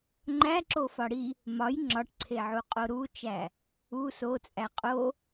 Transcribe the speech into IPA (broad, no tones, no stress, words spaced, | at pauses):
ŋ͡ǃæǁo fɒɽi | mɒj ŋ͡ǁɒʈǀʰeʕu qʼoɾut͡ʃæ | u sot͡sʼæ qʼo